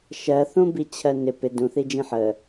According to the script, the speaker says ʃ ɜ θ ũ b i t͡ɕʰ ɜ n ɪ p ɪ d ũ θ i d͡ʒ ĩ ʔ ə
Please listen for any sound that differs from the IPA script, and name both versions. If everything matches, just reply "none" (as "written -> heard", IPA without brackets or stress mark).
ʔ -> ħ